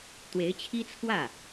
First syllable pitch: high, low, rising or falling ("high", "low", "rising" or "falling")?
rising